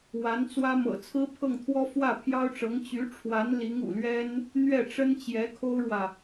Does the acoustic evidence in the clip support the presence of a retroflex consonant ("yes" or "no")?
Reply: yes